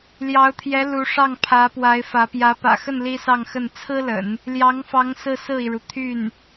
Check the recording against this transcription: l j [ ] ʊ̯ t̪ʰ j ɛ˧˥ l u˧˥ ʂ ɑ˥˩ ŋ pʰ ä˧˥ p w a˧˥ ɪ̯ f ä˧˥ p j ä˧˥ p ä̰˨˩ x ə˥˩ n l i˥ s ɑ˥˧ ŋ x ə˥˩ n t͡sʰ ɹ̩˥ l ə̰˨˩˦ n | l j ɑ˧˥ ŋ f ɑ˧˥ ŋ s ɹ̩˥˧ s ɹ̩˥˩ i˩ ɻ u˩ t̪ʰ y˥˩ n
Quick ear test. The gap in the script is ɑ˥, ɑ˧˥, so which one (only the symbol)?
ɑ˧˥